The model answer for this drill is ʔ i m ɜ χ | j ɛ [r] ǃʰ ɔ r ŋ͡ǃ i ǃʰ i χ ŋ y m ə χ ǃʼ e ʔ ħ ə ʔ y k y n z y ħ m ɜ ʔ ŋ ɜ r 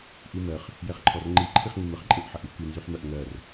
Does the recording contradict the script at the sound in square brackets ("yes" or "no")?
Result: yes